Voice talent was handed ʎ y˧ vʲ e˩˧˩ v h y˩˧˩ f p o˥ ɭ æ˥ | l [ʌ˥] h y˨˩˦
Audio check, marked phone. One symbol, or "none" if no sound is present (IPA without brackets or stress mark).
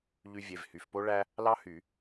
ɑ˥